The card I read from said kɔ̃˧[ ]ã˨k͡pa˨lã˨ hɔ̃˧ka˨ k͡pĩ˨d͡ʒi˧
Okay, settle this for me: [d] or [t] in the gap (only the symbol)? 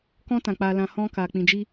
t